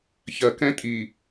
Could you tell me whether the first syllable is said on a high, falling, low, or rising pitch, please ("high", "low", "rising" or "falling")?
low